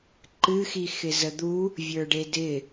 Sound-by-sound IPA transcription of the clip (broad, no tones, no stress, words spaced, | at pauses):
ǃɨxi xɪzəd̪u | vʲə˞ɖedɪ